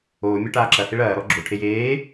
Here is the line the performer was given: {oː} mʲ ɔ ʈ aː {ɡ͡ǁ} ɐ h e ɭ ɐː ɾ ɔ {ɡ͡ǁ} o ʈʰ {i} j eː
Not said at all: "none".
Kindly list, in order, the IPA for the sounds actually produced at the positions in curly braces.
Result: oː, ǁ, ɡ͡ǁ, e

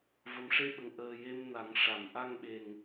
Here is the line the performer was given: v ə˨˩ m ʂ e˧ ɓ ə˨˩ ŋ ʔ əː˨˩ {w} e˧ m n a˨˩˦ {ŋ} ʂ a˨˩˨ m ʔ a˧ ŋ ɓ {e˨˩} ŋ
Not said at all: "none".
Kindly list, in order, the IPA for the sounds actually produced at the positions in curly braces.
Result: j, ŋ, e˨˩

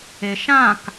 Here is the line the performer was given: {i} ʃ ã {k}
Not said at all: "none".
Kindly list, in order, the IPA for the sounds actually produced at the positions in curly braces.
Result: e, k

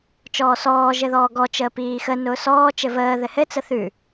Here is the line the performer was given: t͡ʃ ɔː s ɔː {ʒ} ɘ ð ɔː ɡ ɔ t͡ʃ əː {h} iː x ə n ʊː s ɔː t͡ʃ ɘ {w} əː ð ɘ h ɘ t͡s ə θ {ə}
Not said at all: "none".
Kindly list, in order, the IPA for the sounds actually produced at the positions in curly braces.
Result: ʒ, p, v, ʉ

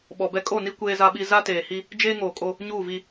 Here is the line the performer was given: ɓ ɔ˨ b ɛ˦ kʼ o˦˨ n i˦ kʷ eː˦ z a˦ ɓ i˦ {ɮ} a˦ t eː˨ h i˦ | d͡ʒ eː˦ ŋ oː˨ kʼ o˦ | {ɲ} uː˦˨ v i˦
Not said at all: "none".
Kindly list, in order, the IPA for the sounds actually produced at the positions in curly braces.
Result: z, ɲ

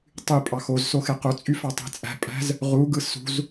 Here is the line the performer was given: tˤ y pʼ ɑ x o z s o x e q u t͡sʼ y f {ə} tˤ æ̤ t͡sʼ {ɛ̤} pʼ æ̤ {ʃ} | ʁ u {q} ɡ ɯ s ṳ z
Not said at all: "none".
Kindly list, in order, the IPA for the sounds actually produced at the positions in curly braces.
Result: ɑ, æ̤, z, none

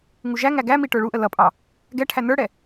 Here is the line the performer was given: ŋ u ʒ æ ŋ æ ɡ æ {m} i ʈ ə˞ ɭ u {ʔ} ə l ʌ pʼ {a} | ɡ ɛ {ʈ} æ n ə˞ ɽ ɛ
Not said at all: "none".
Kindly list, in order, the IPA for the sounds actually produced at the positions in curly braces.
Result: m, ʔ, ɑ, ʈʰ

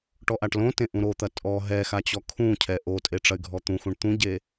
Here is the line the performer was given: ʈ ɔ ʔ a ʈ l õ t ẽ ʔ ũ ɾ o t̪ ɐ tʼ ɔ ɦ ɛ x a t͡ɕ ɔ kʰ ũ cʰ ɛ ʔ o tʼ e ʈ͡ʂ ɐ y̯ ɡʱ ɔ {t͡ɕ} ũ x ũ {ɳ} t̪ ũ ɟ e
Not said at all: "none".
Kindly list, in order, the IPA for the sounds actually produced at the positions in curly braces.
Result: t̪, ɳ

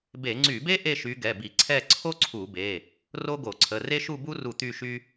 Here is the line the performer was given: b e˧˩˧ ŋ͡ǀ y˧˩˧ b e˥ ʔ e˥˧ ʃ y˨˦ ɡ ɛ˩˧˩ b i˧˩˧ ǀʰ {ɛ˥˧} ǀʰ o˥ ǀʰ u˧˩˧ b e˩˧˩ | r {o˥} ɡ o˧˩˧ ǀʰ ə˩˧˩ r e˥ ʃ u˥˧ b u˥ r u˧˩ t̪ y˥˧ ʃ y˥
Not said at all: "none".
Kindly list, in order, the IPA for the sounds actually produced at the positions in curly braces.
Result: ɛ˥˧, o˥

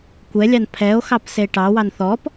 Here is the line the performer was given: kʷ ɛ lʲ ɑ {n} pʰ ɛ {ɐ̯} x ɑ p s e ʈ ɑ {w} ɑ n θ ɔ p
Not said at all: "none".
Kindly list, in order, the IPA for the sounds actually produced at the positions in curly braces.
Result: n, o̯, w

